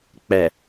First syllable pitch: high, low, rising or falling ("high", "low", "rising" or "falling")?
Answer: low